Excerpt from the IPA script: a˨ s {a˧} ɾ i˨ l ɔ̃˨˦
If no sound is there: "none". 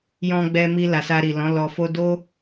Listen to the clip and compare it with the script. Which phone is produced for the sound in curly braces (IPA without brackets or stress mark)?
a˧